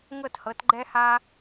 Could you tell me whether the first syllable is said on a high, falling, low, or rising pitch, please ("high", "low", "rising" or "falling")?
falling